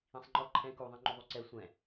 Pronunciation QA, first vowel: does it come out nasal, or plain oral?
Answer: nasal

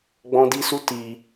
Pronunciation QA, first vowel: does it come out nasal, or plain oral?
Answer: nasal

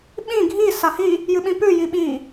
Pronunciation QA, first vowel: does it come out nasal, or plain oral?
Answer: nasal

